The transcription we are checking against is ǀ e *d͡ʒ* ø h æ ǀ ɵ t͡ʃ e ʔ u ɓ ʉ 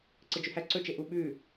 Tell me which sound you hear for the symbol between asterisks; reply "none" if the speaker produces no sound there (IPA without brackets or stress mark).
d͡ʒ